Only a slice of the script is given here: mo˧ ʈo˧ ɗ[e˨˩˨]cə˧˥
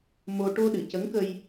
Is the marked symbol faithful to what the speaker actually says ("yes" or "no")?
no